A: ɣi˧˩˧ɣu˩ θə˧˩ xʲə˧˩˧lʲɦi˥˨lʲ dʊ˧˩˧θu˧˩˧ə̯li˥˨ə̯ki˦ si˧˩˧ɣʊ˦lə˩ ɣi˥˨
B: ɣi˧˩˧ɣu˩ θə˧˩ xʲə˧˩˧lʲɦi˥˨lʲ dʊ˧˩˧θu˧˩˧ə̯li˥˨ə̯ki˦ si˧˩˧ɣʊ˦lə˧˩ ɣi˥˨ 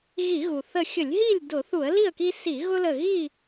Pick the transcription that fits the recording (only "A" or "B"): B